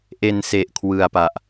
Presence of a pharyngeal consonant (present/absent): absent